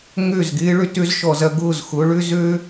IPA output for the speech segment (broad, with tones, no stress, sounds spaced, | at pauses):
ŋ ø˦˨ z ɡ ɪː˦ ɭ ø˧ t ø˦ z ʃ ɔ˨ z ɐ˧ ɡ ʊː˦˨ z x ʊ˨˦ ɭ ʏ˦ z ø˦